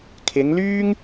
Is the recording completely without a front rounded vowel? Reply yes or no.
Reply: no